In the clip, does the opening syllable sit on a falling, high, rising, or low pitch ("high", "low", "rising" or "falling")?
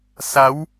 rising